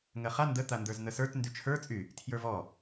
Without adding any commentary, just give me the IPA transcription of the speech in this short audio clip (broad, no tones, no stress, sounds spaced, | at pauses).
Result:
ŋ ɜ χ a n d ə t̪ a n d ə˞ z n̪ ə s ə˞ t n d y t͡ʃʰ ə˞ t͡sʼ y | tʰ j ə˞ v ɔ